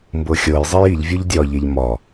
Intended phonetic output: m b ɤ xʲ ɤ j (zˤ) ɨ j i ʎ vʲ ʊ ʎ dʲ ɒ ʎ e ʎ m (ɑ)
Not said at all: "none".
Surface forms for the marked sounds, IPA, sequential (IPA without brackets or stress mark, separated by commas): zˤ, ɒ